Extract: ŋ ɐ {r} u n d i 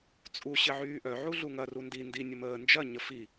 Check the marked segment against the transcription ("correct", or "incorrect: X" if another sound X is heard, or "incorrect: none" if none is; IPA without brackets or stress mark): correct